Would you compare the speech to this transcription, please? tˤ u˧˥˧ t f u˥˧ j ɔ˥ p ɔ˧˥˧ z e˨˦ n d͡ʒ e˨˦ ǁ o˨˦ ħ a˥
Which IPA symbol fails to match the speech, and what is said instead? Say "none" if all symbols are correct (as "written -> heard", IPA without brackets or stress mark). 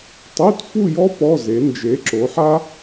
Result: none